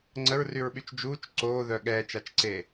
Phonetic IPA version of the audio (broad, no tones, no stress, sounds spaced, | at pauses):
ŋ͡ǀ ə ɹ r y ɹ ɓ y t͡ʃ d͡ʒ uː t͡ʃ ǀ oː ð œ ɠ ɛː t͡ʃ a t͡ʃ ǀ e